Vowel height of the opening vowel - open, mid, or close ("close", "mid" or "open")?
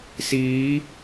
close